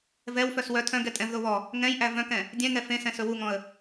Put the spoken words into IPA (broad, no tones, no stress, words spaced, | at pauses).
vɛwfœs wœ tʰœ̃ ɡɛtʼɛ̃vðo βɔ | ŋɛ̃jʔæ vœ̃kɛ̃ | dʲɛ̃ŋɛ fẽsɛ̃ sɵwuŋɔ̃ə̯